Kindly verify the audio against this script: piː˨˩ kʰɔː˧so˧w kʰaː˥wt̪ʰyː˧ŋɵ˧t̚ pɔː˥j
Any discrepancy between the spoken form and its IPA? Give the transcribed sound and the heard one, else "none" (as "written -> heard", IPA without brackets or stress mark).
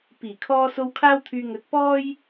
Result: none